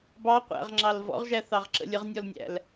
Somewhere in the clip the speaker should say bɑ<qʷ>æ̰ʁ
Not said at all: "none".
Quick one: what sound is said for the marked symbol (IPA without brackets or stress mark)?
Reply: qʷ